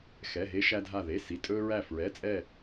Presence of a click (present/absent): absent